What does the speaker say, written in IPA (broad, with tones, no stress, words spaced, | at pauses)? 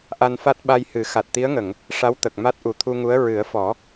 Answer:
ʔa˧nfa˦˥t̚ ɓa˧jhɨ˨˩˦ xa˨˩t̚t̪i˧˥ə̯ŋə˨˩˨ŋ | ʂa˧˥w t̪ə˨˩k̚ma˦˥t̚ ʔu˨˩t̪ʰu˧ŋu˧˥ə̯ ɹɨ˨˩˦ə̯fɔ˨˩˦